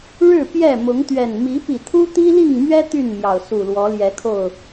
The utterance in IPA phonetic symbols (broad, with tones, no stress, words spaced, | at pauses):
ɻɻ̩˥˨pjɛ˥˨ mʊ˨˦ŋt̪ɥɛ˨˩n mi˨˦pi˨˩ t̪ʰu˦t̪i˦li˥˨ŋmɥɛ˦ t̪y˥˨nmjɑ˩ʊ̯ su˨˩lwɔ˨˦ljɛ˨˦kʰo˥˨ʊ̯